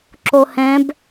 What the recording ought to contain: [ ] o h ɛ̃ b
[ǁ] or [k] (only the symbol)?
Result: ǁ